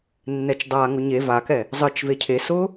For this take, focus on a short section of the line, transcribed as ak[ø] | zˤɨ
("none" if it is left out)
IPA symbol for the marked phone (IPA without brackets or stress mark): ɛ